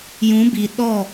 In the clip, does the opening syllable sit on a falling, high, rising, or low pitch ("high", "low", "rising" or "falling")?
rising